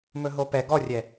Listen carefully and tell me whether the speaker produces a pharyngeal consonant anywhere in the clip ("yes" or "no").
no